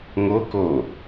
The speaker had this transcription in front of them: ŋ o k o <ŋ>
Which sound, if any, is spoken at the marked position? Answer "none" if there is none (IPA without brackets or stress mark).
none